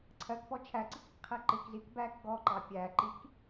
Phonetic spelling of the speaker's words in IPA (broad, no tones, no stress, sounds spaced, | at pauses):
ǀʰ ɜ k p ɔ t͡ʃʰ æ ǀ ɪ k ɪ k qʰ æ ǃ ɪ k z i k b æ k ɡ ɔ ǃ ɑ pʲ æ ǃ i k